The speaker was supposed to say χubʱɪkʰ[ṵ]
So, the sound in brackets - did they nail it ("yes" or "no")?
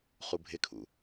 yes